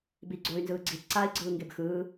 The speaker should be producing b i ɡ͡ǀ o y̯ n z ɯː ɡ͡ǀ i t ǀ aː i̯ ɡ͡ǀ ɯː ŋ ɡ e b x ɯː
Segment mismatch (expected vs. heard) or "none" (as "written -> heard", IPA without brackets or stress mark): none